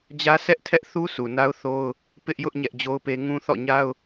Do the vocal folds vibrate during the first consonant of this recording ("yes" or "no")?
yes